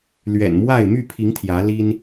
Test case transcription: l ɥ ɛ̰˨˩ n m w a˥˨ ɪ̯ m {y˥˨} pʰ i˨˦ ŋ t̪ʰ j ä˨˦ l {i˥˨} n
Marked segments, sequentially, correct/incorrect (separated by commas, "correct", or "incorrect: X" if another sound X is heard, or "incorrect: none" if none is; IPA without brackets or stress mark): correct, incorrect: i˦